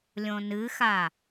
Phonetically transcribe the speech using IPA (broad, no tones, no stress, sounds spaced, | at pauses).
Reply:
lʲ õ n ɨ x a